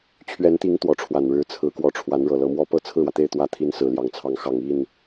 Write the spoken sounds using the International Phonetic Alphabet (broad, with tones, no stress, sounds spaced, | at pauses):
t͡ɕʰ ɥ ɛ˧˥ n t̪ i˧˥ ŋ t̪ w ɔ˧˥ ʈ͡ʂʰ w a˨˩ n ɻ ɻ̩˧˥ t͡sʰ ɹ̩˧˥ k w ɔ˧˥ ʈ͡ʂʰ w a˧˥ n ɻ ɤ˨˩ l ɤ˧˥ m w ɔ˥ p ɤ˥ t͡sʰ ɹ̩˥˩ w ä˩ t̪ e˥˧ ɪ̯ t̪ w ä˥˩ t̪ʰ i˥ n s ɹ̩˨˩ l j ɑ˧˥ ŋ t͡sʰ ɑ˧˥ ŋ x ɑ˨˩ ŋ i˥˩ n